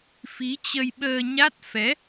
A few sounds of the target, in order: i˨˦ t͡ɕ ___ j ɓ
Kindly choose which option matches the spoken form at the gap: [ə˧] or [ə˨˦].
ə˧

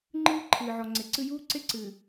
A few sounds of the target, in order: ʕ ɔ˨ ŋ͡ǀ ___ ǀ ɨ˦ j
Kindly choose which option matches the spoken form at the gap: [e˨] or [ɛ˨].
e˨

